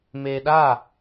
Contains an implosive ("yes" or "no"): yes